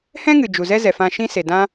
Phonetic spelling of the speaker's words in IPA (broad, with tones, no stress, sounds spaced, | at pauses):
h ɛ̃˦ ŋ ɨ˨ d͡ʒ u˨ z ɛ˦ z ɛ˨ f ã˧ ʃ ĩ˦ s e˨ d ã˦